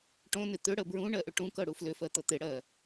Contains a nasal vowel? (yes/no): yes